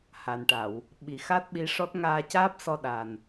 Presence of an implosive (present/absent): present